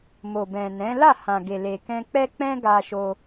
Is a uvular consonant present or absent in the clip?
absent